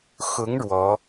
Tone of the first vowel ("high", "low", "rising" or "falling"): rising